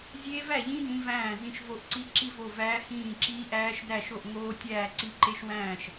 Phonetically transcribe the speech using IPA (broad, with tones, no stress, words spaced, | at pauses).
zʲeː˦˥væ˥˨ʎĩ˦˥ dĩ˦˥væ̃ː˥˨zĩ˥˨ʃvo˥˨ʔ ǀi˦˥ǁi˥˨vo˥˨ væː˦˥hĩː˥˨ǁiː˦˥ʔæː˦˥ʃ dæ˥˨ʃo˥˨ʔ ŋoː˦˥tʲæː˥˨ ǀi˦˥ǃe˦˥ʃwæ̃ː˥˨ʃ